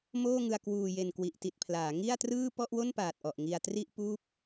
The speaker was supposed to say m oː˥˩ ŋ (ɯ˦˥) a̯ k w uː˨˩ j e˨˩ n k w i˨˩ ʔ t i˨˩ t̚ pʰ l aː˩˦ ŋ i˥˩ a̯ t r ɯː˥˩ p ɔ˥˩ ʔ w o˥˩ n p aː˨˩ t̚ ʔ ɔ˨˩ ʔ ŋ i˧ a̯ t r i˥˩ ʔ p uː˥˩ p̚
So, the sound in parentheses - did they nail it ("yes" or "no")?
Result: no